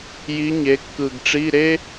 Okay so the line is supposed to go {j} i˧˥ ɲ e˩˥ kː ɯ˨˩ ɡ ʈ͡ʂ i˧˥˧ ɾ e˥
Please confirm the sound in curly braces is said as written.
yes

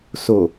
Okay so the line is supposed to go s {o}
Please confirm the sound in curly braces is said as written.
yes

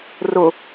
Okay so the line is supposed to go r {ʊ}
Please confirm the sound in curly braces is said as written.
yes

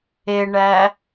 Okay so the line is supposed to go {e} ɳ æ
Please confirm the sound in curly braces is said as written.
yes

